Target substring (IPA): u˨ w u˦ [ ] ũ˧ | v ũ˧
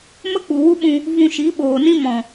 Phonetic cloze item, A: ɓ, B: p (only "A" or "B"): A